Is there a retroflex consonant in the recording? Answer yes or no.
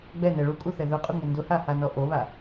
yes